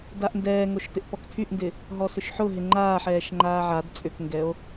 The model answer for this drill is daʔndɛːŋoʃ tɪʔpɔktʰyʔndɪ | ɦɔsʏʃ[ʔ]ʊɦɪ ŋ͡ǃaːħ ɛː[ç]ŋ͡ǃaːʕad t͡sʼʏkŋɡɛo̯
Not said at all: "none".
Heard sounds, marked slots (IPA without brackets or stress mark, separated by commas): ħ, ʃ